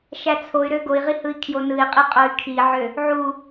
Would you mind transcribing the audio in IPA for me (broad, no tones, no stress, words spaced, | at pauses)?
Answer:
ʃæt͡sʰoy̯ɾø ɡoi̯ʁi hɯi̯kʰjonɯi̯qʼi qʼoy̯kʰiʕø | ʕu